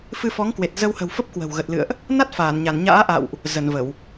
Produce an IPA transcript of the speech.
f ɨ˧ f ɔ˨˦ ŋ k w e˨˩ t̚ z ə˧ w h ə̤˨˩ w f ə˦˥ p̚ k w ə̤˨˩ w ɣ ə˨˩ t̚ l ɨ̰˧˨ ə̯ ʔ | n a˦˥ t̚ f aː˧˩ n ɲ a˧˩ n ɲ a̰ː˧˥ ʔ a̰˧˨ w ʔ | z ə˧˩ n v ə˧˩˨ w

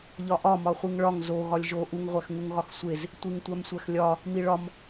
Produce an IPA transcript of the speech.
ʎ ɒ ʔ ɒ m ɒ χʷ i ŋ ɭ ɒ ŋ z o ɣ ɒ lʲ ʒ o ʔ u ŋ ʁʷ æ x ŋ u ŋ ɣ ɒ x sʷ e z | tʷ i ŋ tʷ æ m sʷ æ x lʲ ɒ | m i ɭ ɒ m

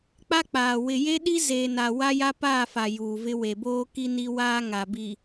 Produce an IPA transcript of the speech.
k͡p a˦ k͡p aː˨ w ɪ˨ j e˦ ɗ i˦ z eː˨ n a˨ w a˦ j a˦ p aː˦˨ f a˨ j uː˨ v ɪ˦ w e˨ b oː˦ k i˦ n i˦ w aː˦ ŋ a˨ b i˨

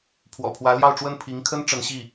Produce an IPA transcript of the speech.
pʰ w ɔ̰˨˩ pʰ w ä˧˥ l j ɑ˥˧ ʊ̯ ʈ͡ʂ w ə˥˩ n pʰ i˧˥ ŋ kʰ ə˥ n ʈ͡ʂ ə˧˥ n ɕ i˥˩

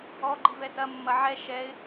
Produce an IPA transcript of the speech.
ɔ ɡ͡ǃ i v ɛ t ɐ mː ɐ ʕ ɛ ʃ ɛ ɪ̯

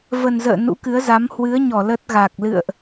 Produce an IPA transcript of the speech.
v ə˨˩ n z ə̰ː˧˨ n ṵ˧˥ k ɨ˨˦ ə̯ z a˨˦ m h w ɨ˨˦ ə̯ ɲ ɔ˧˩ l ə˦˥ t̚ ɣ a˨˩ k̚ l ɨ̰˧˨ ə̯ ʔ

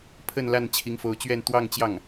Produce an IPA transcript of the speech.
pʰ ə˥˧ n l a˥˩ n t͡ɕʰ i˧˥ ŋ f o˧˥ ʊ̯ t͡ɕ ɥ ɛ˥˧ n t̪ w ɑ˥˧ ŋ t͡ɕ j ɑ˥˩ ŋ

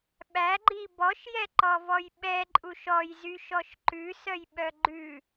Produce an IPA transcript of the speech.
ɓ æ ɡ͡ǃ i b ɔ ʃ j ɛ ǃ ɔ v ɔ j ɓ ɛ ǃʼ u ʃ ɔ j z y ʃ ɔ ʃ ǃ ʉ s œ j ɓ œ ɡ͡ǃ ʉ

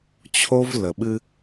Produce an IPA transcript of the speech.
t͡ɕʰ o˦ v l ə˨ ɓ ɨ˦

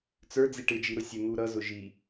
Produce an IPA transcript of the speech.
t͡s ə˞ d͡z i ʈ ɪ d͡ʒ i ɾ ʊ sʲ ə n̪ u ɾ ʌ z ʊ ʒ i

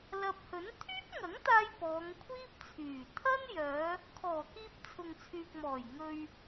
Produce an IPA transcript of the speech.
l ɐ˨ p̚ h ɵ˨˥ n t̪ʰ yː˥ p̚ ŋ ɐ˨˥ ŋ t̪ aː˧ j p ɔː˨˧ ŋ kʷʰ iː˥ p̚ t͡sʰ yː˨˩ t̪ʰ ɐ˥ n j œː˨˧ | kʰ ɔː˨˩ k iː˧ p̚ t͡sʰ ʊ˨ ŋ t͡sʰ yː˨ k̚ m ɔː˨˩ j ŋ ɵ˨ ɥ

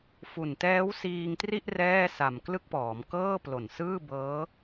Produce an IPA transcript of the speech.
f u˨˩ n t ɛː˦˥ w s iː˧ ŋ t r i˥˩ ʔ r ɛː˥˩ s a˨˩ m k l ɯ˥˩ k̚ p ɔː˩˦ m k ɤː˥˩ p l o˨˩ n s ɯː˥˩ b ɤː˦˥

